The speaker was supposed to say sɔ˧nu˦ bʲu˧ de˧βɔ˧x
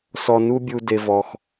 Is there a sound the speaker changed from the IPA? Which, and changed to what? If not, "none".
β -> v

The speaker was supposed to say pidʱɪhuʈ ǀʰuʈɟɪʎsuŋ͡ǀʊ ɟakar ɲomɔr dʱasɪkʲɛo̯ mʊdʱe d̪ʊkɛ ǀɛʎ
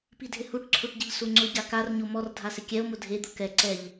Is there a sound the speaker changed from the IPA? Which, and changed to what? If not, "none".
none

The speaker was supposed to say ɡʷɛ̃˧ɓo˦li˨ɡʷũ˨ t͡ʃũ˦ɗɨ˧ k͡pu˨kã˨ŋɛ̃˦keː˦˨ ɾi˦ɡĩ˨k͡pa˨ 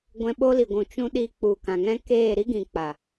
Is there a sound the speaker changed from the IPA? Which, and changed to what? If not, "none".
ɨ˧ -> i˧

